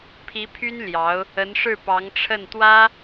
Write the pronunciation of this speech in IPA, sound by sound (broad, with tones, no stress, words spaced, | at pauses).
pʰi˧˥ pʰy˥n ljɑ˧˥ʊ̯ | ə˧˥nʂɻ̩˥˩pɑ˧˥ŋʈ͡ʂʰə˥˩n t̪wä˥